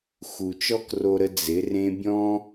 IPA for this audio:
x u˨ t͡ʃ ɔ˦ k r o˧ ɾ ə˧ d͡z ɪ˨˦ r ẽ˦ bʲ ɔ̃˦

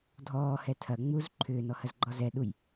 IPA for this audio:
dʱ ɔː h ɛ tʰ ɐ ŋ͡m u z ǃʰ ʏː n ɔ h ɐ z ɡ͡ǃ ɔ z ɛ ɗ u j

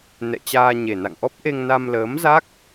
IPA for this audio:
n ɛ̰˧˨ t͡ɕ aː˧ ɲ e˨˩ n a̰˧˨ ŋ ʔ ɔ˦˥ p̚ ʔ e˧ ŋ n a˧ m l əː˨˦ m z a˦˥ k̚

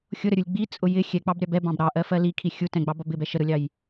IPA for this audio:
xʲ ʊ ɾ ə ɾʲ u lʲ ɡ͡b i t͡sʼ ʊ j ɪ xʲ ɛ k͡p ɑ b ɾʲ ɑ b ɛ b ɑ̃ b ɾ ɑ ʔ ɜ f ɜ l i kʰ i xʲ u t ɛ̃ ɡ͡b ɑ b ɒ b ɪ b ɛ ʃ ə ɾ ʊ lʲ ɑ j

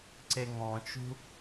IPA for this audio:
ǀ e ŋ ɔ̃ t͡ʃ ṳ

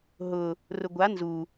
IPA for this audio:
ɦ ʊ | r ʊ ɡʷ a n z u

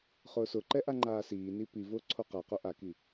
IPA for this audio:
χ ʊː s ʊ ǃ ɛ ʔ a ŋ͡ǃ aː s iː n i p i v ʊː ǀʰ o q a q o ʔ a k i

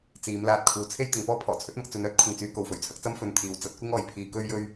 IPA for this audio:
t͡s iː˨˧ m l aː˧ t̚ kʰ uː˨ t͡sʰ e˥ j t̪ ɪ˨˧ ŋ p ɔː˥ pʰ ɔː˨˩ t͡sʰ ɵ˥ t̚ m ɐ˧ k̚ t͡s ɵ˨˧ n œː˥ t̚ kʷʰ ɪ˨ ŋ t͡s yː˨˧ k o˨ w f ɵ˨˩ ɥ t͡sʰ ɐ˨˥ k̚ t͡s ɐ˥ m f ɵ˧ n t̪ʰ iː˨˧ w t͡s ɐ˨˥ t̚ kʷ ɪ˥ ŋ ɔː˨ j pʰ iː˧ k ɵ˥ ɥ j ɵ˥ ɥ

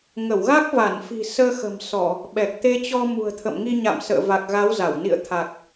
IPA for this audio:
ŋ ə˧˩ w ɣ a˦˥ k̚ v a˧˩ n f i̤˨˩ s əː˧ x ə̤˨˩ m s ɔ˧˩˨ | ɓ ɛ˨˩ k̚ t̪ e˧ t͡ɕ ɔ˧ m ṳ˨˩ ə̯ t̪ʰ ə̰˧˨ m ŋ i˧ ɲ a̰˧˨ m s ə̰ː˧˨ v a˨˩ k̚ ɣ a˨˦ w z a˧˩ w n ḭ˧˨ ə̯ t̪ʰ a˨˩ k̚

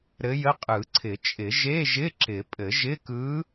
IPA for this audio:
ɾ ɘ˧˥ j ə˧˥˧ qʼ ɯ˨˩˦ ǀʰ ɪ˨˩˦ t͡ʃʼ ɪ˨˩˦ ʒ e˧˥˧ ʒ ɪ˧˥˧ ǁ ɪ˨˩˦ pʼ ɘ˨˩˦ ʒ ɪ˧˥˧ k ɯ˧˥

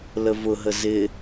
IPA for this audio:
l ə v ʊ ɦ ə z ɪ

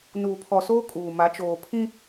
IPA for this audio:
n uː˨ pʰ ɔ˨ s oː˦ kʼ uː˨ m a˨˦ t͡ʃ oː˨ pʰ ĩ˦

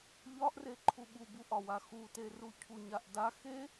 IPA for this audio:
ʎ ɒ ʔ r e ǃʰ u ɓ u b u ʔ ɒ w a x u t e r u cʰ u ɲ a ʔ d a x e

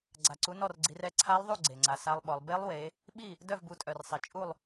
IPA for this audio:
ɡ͡ǀ a˨˩ ǀ u˨˦ n ɔ˥˨ r ɡ͡ǀ i˨˦ r ɛ˥˨ ǀʰ a˦˥ lˠ ðˤ u˥˨ ɡ͡ǀ e˨˩ ŋ͡ǀ a˨˦ s a˦˥ lˠ ɓ ɔ˨˦ lˠ b e˦˥ lˠ w e˨˦ | ɓ i˥˨ | d œ˥˨ v b u˨˦ tʼ œ˨˩ r sˤ i˨˩ t͡ʃʼ u˥˨ lˠ

